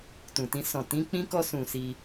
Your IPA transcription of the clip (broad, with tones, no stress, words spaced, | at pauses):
tũ˨tĩ˨˦sɔ̃˦˨ tĩ˨˦k͡pĩ˦kɔ˦ sũ˦˨si˧